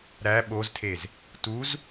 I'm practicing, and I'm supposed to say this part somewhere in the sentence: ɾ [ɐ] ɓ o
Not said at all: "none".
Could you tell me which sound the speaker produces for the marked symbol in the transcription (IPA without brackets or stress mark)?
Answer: æ